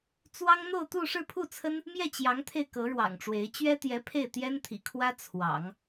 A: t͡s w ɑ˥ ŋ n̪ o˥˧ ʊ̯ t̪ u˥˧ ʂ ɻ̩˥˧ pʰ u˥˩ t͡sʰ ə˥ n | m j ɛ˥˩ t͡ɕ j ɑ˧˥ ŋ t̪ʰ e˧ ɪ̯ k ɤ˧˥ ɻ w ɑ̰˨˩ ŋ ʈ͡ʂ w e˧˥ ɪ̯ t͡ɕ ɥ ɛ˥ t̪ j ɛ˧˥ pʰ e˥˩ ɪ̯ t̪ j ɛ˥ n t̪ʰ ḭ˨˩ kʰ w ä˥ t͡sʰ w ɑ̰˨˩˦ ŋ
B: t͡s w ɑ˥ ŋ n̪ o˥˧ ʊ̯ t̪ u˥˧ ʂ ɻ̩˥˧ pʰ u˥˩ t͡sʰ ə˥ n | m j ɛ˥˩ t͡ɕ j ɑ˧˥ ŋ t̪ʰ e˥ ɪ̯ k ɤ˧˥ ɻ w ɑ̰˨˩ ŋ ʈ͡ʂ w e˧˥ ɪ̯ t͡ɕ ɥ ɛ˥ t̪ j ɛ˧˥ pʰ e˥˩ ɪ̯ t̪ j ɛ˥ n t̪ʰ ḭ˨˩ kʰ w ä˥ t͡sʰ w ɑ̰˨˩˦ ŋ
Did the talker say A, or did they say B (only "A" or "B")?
A